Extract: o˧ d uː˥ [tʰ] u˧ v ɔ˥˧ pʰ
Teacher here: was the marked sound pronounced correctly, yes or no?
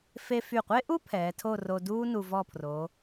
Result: no